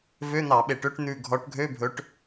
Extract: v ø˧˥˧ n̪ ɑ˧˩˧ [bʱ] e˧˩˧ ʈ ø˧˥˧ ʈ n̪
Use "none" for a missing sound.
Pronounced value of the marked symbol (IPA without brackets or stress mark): ɓ